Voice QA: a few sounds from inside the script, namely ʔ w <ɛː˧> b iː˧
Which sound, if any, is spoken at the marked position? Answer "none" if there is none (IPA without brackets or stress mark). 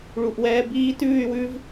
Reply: ɛː˧